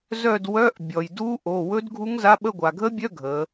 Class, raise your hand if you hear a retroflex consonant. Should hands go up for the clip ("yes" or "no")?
no